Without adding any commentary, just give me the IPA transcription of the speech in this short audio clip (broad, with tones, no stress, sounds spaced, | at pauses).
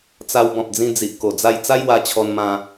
t͡s a˧ w b ɔ̃˨ p̚ d͡z ĩ˧ d͡z i˨ ʔ k o˨˩ d͡z a˧ j t͡s a˦ j w a˧ t͡ɕʰ ɔ˧ n m ã˧